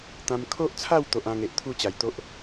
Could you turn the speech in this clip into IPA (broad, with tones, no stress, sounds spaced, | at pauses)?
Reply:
t̪ ã˧ m kʰ o˦ ʔ t͡sʰ a˥˧ w t̪ o˦ ʔ ã˦ ŋ e˨ ʔ t̪ʰ u˥˧ t͡ɕ a˨˩ j t̪ o˦ ʔ